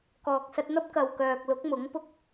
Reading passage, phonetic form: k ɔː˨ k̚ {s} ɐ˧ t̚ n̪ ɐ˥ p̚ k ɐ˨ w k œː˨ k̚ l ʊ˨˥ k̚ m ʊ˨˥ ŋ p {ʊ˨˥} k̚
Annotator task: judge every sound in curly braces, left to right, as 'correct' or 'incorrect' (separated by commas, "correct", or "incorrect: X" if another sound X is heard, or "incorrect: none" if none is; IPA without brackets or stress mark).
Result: correct, incorrect: ʊ˥